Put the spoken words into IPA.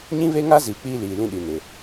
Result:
ɲĩ˦βe˦ŋa˦ ziː˨k͡piː˦liː˨lĩ˦ ɗi˨nɪ˨

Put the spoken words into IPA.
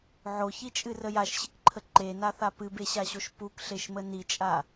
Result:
ʕoçit͡ʃʼɨrə jaʃɕɨkǃʰə ǃenaθa pɨbeɕaɕoʃ pukɬeʃmə nit͡ʃʼa

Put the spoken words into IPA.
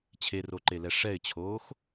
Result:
t͡ɕʰeroǃelɛ ʂɛɪ̯t͡ɕʰoːx

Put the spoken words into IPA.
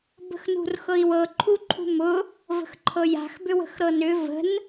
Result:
bə̤xnṳrxɤi̯wɤ ǃʰuǃʰṳmʊ | və̤xǃʰɤja̤x bʏwə̤xɾɤnʏ və̤n

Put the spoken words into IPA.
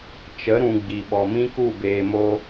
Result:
t͡ʃə˨˦ɾũ˨ ɡ͡bi˨ɓɔ˨mĩ˦ku˦˨ beː˨mo˧

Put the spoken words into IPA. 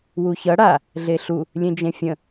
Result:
wuçʌ ɽa | ɮeɬu | lʲẽd͡ʒẽfʲə̃

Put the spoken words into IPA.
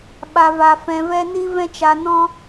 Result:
ɓa˨va˨ fɛ̃˧vɛ˦ni˦ vɛ̃˦t͡ʃa˧nɔ̃˦

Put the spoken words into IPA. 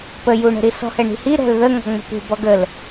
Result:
pəjuɳə̤ɾi sɔ̤hɛɳi̤hi ɾɛ̤lðə ŋɔ̤ŋ͡mə̤pṳ bɔɡəl

